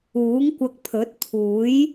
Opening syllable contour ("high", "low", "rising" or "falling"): rising